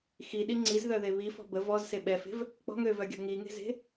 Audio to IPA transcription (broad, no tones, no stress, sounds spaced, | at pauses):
x i ɗ i ŋ͡ǀ i z ð œ ð e β i f ɔ̤ b ə v ɔ z s e ɓ ɛ f e̤ v | k͡p ɔ̤ ŋ ø v œ ɡʲ ɔ̤ ŋ i ŋ e̤ z e̤